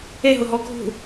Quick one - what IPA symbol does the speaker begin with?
e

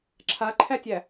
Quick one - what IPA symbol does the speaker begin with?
ǁʰ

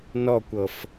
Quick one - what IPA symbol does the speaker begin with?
n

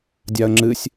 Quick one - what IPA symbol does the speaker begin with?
dʲ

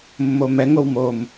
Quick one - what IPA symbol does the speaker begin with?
mː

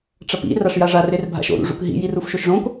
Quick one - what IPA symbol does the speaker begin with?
ʈ͡ʂ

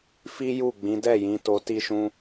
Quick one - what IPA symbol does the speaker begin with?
f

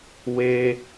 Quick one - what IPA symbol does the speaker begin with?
w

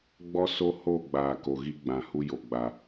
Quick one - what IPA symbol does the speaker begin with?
ɡ͡b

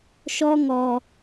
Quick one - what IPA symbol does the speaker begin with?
ʃ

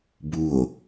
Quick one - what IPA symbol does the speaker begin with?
b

